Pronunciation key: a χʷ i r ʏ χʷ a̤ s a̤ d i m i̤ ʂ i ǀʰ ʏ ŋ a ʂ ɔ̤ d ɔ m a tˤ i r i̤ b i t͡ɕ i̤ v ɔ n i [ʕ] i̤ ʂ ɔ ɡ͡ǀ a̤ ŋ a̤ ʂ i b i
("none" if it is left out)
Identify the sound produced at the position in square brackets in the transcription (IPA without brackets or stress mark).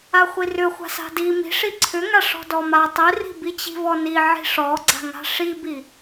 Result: ʕ